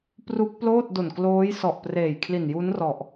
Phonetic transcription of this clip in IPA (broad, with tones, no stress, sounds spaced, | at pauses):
p r u˦˥ k̚ p l oː˥˩ t̚ d o˨˩ n k l oː˦˥ j s ɔ˨˩ ʔ p r eː˨˩ j kʰ l i˨˩ n j u˦˥ n r ɔ˨˩ ʔ